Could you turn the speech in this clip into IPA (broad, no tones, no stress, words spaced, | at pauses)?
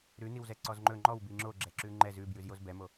ɾʉniwzɛ ǀɔzŋ͡ǃɵ ŋ͡ǃɔw biŋ͡ǁo ɡ͡ǁɛǁʉŋ͡ǃɛz ʉbjʉz jozbɛmo